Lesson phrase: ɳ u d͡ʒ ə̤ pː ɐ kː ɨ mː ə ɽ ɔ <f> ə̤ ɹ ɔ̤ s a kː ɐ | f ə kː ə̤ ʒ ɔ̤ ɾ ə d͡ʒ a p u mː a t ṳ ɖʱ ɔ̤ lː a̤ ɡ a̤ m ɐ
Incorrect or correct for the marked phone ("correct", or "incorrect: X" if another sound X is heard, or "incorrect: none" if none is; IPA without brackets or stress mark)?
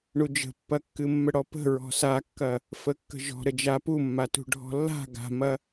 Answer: incorrect: p